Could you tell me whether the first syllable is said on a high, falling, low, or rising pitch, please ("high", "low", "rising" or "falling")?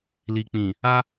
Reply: low